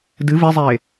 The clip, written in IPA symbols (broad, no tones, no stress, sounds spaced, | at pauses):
d ɨ v e zˤ eː